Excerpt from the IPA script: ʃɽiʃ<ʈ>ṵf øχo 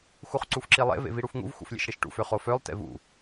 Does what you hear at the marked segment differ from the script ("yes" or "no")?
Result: no